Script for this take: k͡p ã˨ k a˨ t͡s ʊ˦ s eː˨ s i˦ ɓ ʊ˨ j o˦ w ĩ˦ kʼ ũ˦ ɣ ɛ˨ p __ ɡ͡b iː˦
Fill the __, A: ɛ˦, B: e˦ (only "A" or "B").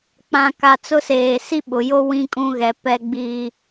A